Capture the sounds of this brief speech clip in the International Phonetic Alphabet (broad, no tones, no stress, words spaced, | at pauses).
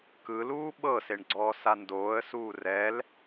kɯluː ɓɤseɳɡ͡ǀɔː sandoːə̯ suːrɛl